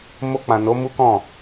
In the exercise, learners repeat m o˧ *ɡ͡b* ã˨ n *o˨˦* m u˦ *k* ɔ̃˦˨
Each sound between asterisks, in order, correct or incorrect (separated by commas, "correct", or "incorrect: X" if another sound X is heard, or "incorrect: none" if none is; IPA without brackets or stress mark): incorrect: k͡p, correct, correct